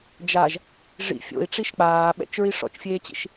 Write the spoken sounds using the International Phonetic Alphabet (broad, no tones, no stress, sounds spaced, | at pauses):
d͡ʒ a ʒ | ʐ ḭ fʲ o̰ i̯ ʈ͡ʂ i ʃ k͡p aː ɓ ɛ̰ t͡ʃ ɹ i ʂ ɔ̰ t͡ʃ fʲ eː t͡ɕ ḭ ʃ